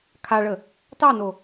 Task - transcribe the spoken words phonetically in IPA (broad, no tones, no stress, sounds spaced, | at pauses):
kʰ a ɭ ə | t ɑ n o